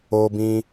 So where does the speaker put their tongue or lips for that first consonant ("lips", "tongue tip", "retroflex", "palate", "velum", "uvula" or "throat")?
lips